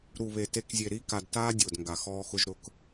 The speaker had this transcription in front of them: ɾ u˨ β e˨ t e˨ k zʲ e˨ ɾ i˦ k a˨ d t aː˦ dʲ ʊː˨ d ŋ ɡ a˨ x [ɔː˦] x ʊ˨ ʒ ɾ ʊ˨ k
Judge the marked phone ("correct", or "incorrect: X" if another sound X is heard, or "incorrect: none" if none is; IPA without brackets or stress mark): correct